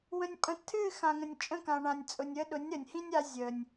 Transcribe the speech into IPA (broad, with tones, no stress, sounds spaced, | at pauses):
w ə̃˨ nʲ pʼ ə̃˨ tʰ ɨ˦˨ x ã˨ ŋ ə̃˨ nʲ t͡ʃʼ ə̃˦˨ k ã˨ ɳ ã˨ nʲ t͡sʼ ʊ˨ nʲ ə˦ ɗ ʊ˨˦ nʲ ɾ ə˨ nʲ h ĩ˦ nʲ a˧ zʲ ə˨ nʲ